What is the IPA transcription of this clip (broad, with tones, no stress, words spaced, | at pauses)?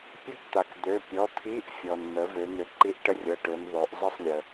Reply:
pʲɵ˥˩kt̪a˩kd̪ø˩˧˩ pʲɔ˩˧˩t̪ʰi˧˥˧ʔfʲɔ˩nn̪ə˩˧ vø˩˧n̪ø˩˥ǃi˧˥˧ʔ ʈə˥˩rʲɤ˩˧˩ʈø˩˧n ðˤø˩˧ʔzˤi˥˩sˤlʲə˩